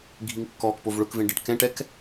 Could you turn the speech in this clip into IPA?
ɡʱiŋkːɔːkpov ɭʊkvẽ ɖɪʈ kɛ̃ʈɛk

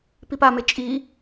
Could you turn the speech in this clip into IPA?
pipame t͡ʃʼi

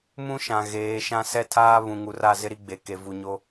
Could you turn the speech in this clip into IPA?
mũ˦ʃã˨ ɣeː˨˦ʃã˦ sɛ˦tʰaː˦ βũ˨ ŋu˨ra˦˨ zɪ˦ɾi˦ɡ͡be˨ ke˨vu˨ɲo˦

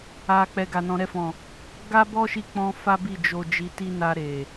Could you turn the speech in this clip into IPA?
a˨ k͡pɛ˨ ɡa˨ nɔ̃˨ɾɛ˧fɔ̃˨ | ɡa˧bɔ˧ ʃi˦k͡pɔ̃˦ fa˦bi˦˨ d͡ʒo˧d͡ʒi˧ti˦ na˧ɾe˨

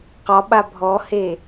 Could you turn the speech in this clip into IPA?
qɒɓa bʱɔhe

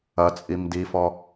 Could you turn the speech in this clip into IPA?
ɐt͡sʼim difɔ

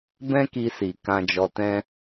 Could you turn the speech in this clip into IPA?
bɛ̃˦ki˧si˨ kã˧d͡ʒɔ˧tɛ̃˦

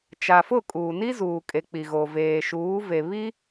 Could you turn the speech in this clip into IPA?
t͡ʃa˨fʊ˦˨ kʼuː˨ni˦zuː˨kʼe˨ k͡pi˨ɣo˨ veː˨ʃuː˨˦ve˨ βi˦

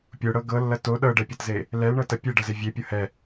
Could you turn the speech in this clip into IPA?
pʲoɽɤ ɡɤlːɐ to ɗɤɖɛpʲɤtze | lɛlɳɤtɐ pʲeɖɐze vʲepʲɤ hɛ

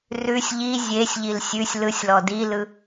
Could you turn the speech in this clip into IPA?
rʉsʲ ʎi zʲesʲʎil sʲʉsʲ lɯsʲlɔ dilɯ

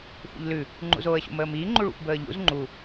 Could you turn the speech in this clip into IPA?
xʷə̰ʎlʉ | ŋ͡ǃṵzoːə̯ɕṵm əːmiː ŋ͡ǃuɭṵxʷbəːʎṵz ŋ͡ǃu

